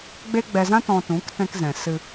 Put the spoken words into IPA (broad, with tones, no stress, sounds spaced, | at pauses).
ɡ͡b e˦ ɡ͡b ɛ˧ z ã˦ t ɔ̃˧ t ũ˨˦ k t ɛ̃˧ k z ɛ̃˨ s ɨ˧